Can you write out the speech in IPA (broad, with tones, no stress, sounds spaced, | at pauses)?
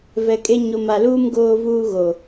v ɛ˨ kʼ e˦ ɲ o˨ m a˨ l uː˦ m ɡ oː˦ v uː˦ ɣ o˨